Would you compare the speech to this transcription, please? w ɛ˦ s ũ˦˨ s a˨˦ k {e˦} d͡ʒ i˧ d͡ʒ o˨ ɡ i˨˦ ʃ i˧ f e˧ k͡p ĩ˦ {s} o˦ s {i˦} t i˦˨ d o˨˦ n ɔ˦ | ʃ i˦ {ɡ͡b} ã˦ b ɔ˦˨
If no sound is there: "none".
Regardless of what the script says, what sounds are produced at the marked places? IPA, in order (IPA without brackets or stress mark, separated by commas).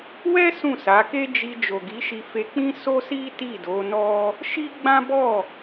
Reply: e˦, s, i˦, ɡ͡b